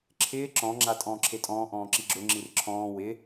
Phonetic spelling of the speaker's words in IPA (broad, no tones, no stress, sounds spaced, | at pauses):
ǁʰ ɪː ǁ ɔ̃ ŋ͡ǁ a tʼ ɔ̃ː ǁʰ e tʼ ɔ̃ː ʔ ɔ̃ː ǁ i ɡ͡ǁ ʊ ŋ͡ǁ i r ǁʰ ɔ̃ː w ɪ